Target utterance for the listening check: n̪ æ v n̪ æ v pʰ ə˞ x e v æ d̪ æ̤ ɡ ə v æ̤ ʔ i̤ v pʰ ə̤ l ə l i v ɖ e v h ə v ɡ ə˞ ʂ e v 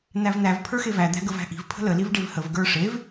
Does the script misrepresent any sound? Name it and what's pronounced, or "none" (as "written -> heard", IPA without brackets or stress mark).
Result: none